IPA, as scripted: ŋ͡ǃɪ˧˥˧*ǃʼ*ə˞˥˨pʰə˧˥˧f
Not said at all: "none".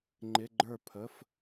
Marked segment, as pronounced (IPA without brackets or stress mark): ɡ͡ǃ